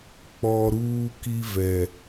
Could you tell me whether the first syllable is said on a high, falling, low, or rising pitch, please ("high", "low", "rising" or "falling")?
low